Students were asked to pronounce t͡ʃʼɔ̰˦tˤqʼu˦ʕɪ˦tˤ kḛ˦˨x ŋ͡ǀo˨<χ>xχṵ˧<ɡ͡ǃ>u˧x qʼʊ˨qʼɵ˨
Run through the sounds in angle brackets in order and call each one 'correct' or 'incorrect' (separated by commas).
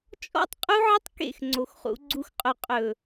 incorrect, incorrect